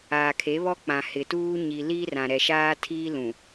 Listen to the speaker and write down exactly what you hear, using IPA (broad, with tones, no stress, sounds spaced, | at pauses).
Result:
aː˨ kʰ e˨˦ β ɔ˦ k͡p ã˨ h ɪ˨ t uː˦ ɲ i˨ l i˦ r ã˨ ɾ ɛ˨ ʃ aː˦ tʰ iː˦ l ũ˨